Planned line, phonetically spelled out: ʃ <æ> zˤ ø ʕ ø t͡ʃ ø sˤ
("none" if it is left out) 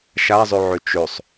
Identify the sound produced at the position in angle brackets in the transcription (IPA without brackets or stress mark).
a